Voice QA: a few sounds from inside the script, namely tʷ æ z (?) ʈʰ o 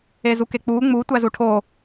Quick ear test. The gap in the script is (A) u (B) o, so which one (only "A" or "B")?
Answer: A